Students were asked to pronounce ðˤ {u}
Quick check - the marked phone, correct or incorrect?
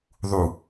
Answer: correct